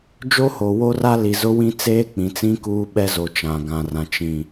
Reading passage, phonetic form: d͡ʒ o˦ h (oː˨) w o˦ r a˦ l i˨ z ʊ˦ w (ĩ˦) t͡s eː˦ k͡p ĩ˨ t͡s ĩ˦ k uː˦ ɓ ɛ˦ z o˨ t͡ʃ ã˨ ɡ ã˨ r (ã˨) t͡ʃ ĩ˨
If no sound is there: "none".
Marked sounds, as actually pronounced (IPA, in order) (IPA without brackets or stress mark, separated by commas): o˨, ĩ˦, ã˨